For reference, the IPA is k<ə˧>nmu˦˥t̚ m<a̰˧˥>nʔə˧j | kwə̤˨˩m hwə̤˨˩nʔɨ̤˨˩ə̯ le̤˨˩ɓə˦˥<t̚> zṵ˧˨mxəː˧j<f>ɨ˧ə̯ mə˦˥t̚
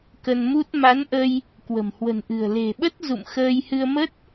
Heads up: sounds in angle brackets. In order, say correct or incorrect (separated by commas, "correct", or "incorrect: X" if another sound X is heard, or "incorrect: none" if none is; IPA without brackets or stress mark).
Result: correct, incorrect: a˨˦, correct, incorrect: h